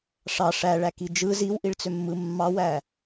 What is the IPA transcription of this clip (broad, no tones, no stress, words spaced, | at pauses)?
ʂɑ ʂæ ɭækid͡ʒɯ ziwʔiɭt͡sømːɯ mːɑwæ